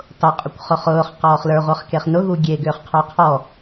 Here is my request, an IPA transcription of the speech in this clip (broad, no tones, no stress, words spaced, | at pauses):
tˤʊqʼʊkʷ χʊχʊːχ qɔːχlə˞ʁʷə˞χ keχnʊɣu ɡʲeɡʏːχ qʰʏːqʰɔ